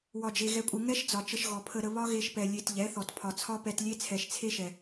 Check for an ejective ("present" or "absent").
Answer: present